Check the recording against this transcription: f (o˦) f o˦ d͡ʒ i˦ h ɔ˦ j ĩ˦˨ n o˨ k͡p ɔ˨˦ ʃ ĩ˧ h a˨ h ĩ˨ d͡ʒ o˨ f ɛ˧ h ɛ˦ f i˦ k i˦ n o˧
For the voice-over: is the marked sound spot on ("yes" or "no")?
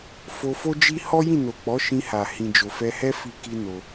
no